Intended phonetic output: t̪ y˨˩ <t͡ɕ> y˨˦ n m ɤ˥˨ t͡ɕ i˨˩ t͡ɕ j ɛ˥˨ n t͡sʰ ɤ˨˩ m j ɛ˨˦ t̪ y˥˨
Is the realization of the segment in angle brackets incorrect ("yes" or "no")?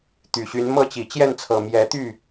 yes